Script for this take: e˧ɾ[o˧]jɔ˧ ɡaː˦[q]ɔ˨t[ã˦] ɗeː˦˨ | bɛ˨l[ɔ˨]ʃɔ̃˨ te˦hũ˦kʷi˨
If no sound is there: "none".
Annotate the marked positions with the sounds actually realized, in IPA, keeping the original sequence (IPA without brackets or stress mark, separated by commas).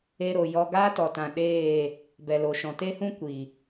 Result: o˨, t, ã˨, o˨